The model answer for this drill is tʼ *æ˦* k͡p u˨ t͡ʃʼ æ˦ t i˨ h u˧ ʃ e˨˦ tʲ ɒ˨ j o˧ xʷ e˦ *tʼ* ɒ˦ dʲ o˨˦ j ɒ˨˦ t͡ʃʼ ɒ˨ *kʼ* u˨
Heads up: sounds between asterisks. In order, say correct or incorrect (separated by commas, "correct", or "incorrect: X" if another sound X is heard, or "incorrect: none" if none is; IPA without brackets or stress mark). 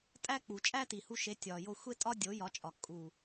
correct, correct, correct